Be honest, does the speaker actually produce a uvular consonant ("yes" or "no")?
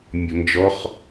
yes